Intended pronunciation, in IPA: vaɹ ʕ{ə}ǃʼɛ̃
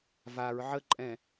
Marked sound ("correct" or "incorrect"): correct